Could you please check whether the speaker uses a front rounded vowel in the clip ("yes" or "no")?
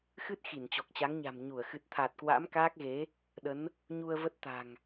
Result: no